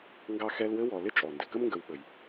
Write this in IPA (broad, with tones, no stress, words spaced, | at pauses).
ŋɡɑ˦xɛ˦lwɘ˥wɔ˨ lɪ˦t͡ʃʼɔ˩ndɪ˩ kə˥mŋɡə˨wɓə˩j